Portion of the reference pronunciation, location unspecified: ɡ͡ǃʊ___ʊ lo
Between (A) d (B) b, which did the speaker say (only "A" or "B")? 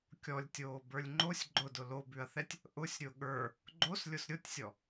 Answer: A